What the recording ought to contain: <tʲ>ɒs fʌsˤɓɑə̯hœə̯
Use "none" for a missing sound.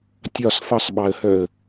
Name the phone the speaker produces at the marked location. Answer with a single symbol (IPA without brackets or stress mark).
tʲ